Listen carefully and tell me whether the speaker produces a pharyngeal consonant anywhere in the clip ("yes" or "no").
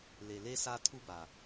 no